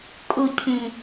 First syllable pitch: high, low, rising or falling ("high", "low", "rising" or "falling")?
low